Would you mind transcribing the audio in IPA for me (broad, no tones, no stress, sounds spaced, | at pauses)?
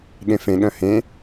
ɠ ẽ f ẽ ɠ œ̃ h ẽ